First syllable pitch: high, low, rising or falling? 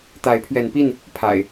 rising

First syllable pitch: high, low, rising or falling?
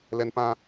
high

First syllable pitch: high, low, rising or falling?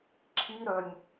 high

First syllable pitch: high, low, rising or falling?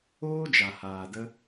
high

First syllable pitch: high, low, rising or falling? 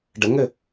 rising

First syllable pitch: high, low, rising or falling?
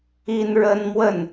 high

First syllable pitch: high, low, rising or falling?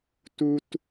high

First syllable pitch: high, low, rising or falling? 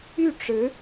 falling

